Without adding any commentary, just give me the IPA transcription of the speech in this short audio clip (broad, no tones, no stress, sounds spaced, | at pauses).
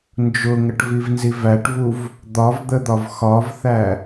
n d͡ʒ ʊ ŋ ə ʈ v i v n z i v æ ʈ v u v | d̪ ɒ v d̪ ə d̪ ɒ v x ɒ v θ æ